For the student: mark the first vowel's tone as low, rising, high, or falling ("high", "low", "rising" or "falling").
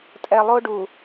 low